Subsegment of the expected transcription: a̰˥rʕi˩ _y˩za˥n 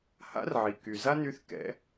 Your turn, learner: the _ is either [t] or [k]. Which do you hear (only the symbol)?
k